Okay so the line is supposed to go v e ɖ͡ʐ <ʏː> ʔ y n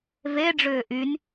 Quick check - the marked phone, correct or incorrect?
correct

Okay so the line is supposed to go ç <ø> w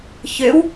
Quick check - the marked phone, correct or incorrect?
correct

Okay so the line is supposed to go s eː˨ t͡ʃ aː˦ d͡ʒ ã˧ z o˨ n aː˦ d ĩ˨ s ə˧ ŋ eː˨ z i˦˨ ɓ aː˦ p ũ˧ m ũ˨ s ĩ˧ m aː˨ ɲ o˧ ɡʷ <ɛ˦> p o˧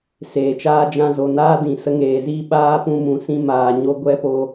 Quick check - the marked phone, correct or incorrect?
correct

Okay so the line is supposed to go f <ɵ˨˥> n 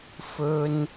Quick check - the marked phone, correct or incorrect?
incorrect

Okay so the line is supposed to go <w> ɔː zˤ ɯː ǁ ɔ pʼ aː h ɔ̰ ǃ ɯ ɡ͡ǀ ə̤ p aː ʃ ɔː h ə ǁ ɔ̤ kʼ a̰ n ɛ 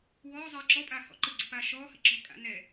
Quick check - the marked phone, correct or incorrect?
correct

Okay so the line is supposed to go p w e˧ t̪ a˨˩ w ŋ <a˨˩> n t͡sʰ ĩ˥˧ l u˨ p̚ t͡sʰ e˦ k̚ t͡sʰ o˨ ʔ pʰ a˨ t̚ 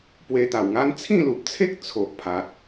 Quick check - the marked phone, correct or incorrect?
incorrect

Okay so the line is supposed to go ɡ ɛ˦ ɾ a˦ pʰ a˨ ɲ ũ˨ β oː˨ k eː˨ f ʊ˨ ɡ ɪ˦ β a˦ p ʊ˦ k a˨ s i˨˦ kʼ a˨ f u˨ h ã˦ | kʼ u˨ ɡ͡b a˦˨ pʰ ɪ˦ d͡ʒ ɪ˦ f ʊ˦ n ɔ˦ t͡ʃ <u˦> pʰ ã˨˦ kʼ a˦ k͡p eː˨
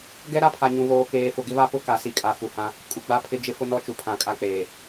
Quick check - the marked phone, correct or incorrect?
incorrect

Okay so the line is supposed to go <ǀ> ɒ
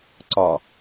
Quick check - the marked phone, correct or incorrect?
correct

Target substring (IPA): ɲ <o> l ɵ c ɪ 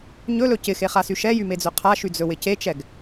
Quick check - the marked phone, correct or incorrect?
incorrect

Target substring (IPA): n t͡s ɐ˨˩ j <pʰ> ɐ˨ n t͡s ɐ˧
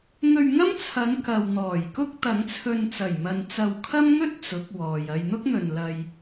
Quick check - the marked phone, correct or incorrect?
incorrect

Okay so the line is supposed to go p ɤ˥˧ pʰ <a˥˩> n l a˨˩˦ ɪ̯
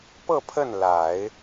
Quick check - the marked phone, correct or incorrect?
incorrect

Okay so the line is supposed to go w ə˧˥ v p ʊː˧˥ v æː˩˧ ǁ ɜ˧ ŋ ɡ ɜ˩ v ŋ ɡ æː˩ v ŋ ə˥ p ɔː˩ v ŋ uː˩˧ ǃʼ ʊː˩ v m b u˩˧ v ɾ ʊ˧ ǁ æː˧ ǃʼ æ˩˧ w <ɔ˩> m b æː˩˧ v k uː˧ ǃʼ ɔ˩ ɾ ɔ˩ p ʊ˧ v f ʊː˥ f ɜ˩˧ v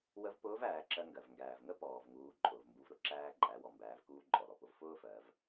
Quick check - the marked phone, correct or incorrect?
correct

